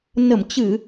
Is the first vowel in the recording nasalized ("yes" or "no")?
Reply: no